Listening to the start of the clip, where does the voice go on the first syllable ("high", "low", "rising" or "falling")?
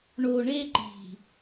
low